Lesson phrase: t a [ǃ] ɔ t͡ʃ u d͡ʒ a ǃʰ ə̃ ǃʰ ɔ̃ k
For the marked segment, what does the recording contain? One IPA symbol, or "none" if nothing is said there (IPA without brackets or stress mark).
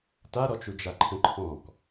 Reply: ɾ